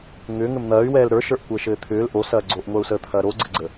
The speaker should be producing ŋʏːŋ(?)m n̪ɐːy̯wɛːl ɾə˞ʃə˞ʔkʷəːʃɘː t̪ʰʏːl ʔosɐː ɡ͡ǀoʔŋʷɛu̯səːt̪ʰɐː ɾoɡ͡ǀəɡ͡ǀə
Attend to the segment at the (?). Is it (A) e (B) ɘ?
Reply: B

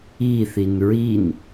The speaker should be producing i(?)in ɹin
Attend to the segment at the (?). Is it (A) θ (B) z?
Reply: A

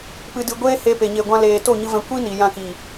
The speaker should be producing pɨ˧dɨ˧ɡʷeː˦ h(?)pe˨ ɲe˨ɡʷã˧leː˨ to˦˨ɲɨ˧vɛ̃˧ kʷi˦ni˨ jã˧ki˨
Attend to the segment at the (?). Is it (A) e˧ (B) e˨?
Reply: A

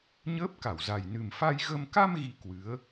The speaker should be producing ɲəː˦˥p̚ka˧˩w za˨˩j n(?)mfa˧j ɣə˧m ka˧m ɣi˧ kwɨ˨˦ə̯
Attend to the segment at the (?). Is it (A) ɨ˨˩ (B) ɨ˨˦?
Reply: A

